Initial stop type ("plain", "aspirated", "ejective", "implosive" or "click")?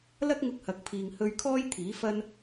plain